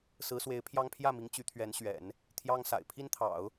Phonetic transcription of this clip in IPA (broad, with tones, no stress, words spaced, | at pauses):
sɹ̩˧˥swe˧˥ɪ̯pʰjɑ˥ŋ pʰjä˥˩mi˧˥ŋ t͡ɕy˧˥t̪ʰɥɛ˧˥nɕɥɛ̰˨˩˦n | t̪ʰjɑ˥ŋ sa̰˨˩ɪ̯ pʰi˥nt̪ʰɑ̰˨˩˦ʊ̯